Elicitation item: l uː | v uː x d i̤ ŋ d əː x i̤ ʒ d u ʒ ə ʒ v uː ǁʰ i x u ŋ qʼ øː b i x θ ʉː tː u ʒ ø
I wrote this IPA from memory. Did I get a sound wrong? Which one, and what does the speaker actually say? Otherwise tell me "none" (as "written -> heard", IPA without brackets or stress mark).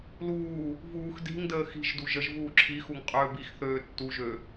ʉː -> øː